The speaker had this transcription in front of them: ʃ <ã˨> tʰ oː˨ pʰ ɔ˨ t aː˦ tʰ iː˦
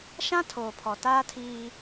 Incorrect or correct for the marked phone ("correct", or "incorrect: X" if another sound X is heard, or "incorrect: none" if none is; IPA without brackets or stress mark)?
incorrect: ã˦